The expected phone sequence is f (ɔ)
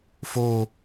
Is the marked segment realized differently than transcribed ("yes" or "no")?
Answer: yes